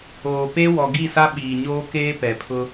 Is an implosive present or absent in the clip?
present